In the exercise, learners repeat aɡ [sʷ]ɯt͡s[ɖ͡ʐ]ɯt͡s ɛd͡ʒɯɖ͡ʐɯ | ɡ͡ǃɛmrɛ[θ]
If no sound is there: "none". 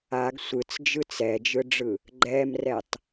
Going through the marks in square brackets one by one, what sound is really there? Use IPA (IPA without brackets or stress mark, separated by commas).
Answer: sʷ, d͡ʒ, tˤ